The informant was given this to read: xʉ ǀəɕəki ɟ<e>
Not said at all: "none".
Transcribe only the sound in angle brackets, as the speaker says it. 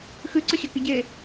e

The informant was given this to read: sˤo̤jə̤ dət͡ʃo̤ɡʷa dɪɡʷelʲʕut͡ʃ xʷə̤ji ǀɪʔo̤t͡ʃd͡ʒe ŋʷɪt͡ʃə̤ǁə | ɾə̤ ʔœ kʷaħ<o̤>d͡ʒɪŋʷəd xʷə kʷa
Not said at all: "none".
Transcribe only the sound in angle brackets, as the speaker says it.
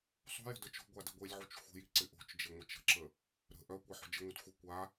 o̤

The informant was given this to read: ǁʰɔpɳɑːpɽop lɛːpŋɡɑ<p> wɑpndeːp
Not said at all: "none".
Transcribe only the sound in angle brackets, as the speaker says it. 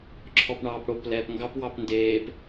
p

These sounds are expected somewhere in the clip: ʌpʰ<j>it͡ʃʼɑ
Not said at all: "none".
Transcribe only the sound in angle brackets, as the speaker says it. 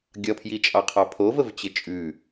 j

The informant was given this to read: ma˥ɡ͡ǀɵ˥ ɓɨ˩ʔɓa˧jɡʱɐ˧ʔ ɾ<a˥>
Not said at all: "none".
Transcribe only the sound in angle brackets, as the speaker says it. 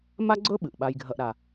a˩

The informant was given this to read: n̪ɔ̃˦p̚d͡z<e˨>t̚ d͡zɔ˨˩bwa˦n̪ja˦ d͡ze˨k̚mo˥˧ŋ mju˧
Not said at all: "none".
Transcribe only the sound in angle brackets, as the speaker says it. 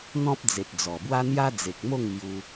e˨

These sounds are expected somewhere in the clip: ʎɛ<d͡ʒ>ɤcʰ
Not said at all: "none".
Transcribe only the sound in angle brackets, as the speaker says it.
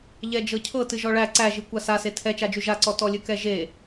d͡ʒ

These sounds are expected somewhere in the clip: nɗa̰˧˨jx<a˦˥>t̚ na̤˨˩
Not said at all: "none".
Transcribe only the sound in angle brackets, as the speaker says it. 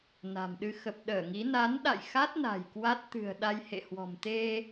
a˦˥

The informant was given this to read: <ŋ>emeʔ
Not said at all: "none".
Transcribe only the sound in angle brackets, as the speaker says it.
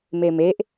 m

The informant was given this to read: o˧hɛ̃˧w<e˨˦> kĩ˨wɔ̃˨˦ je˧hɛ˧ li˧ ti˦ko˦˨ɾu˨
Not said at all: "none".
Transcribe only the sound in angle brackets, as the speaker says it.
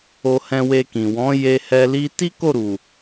e˧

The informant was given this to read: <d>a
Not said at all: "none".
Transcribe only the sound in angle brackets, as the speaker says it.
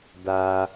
d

